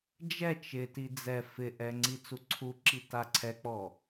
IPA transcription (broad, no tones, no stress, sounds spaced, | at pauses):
d͡ʒ ɛ t͡ʃ ɪ t i d͡z ɛ f ɪ ʔ ɛ ŋ͡ǀ i t͡s u ǀʰ u ǁ i t a ǀʰ ɛ k͡p ɔ